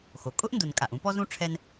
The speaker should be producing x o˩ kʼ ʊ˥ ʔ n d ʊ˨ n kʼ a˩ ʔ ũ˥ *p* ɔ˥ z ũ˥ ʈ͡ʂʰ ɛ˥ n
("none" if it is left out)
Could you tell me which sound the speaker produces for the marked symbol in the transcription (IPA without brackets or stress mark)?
p